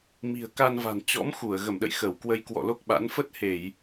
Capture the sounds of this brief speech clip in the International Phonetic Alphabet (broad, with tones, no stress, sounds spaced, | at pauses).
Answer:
m i̤˨˩ ə̯ k a˧ n v a̤˨˩ n t͡ɕ ɔ̰˧˥ m x u˧˩ ə̯ ɣ ə˧˩ m ɗ ə̰˧˨ j x ə˧˩ w k w ə˧ j k w ɔ̰˧˨ l o˦˥ k̚ ɓ a̰˧˥ n f ə˦˥ t̚ h e˧˩˨ j